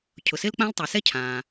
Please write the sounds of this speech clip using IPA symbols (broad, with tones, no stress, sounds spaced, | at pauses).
cʰ ʊ˩ s ɪ˥ l k͡p ã˥ l tˤ ʊ˩ s ɛ˥ cʰ ãː˩